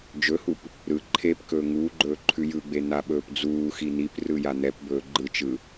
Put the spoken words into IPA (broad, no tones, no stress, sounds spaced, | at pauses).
d͡ʒ ɵ h u p | ɾ ɯ ǃʰ e p k ɵː ŋ uː ɡ͡ǃ ɵː ǃʰ ʉ j ɯ ɡ͡b e n̪ a ɓ ɵː p d͡z uː x i n̪ i p r ɯ j a n̪ ɛ p b ɵː ɡ͡ǃ ɯ t͡ʃ ɯ